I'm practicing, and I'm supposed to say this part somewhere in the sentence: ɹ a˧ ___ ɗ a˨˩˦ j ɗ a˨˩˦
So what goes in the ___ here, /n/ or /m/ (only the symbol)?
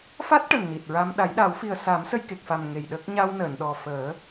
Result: m